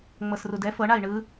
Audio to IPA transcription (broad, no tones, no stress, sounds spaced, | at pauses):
ŋ͡m ɤ s r u d ɛ f ɤ ɳ a i̯ ɳ ɯ